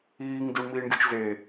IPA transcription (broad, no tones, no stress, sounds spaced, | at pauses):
iː ŋ d u ɳ m iː ɳ ɡʲ u t͡ʃ z e